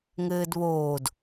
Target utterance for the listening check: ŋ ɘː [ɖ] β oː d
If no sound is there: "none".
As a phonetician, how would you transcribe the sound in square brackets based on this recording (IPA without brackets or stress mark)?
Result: d